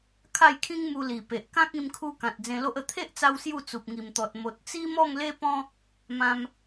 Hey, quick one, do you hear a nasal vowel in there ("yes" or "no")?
yes